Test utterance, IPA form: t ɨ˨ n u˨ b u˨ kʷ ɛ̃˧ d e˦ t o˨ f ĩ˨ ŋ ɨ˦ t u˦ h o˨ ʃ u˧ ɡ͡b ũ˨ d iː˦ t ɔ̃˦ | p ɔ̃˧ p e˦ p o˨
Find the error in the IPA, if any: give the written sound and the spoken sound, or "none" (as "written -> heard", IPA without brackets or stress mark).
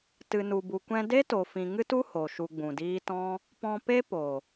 none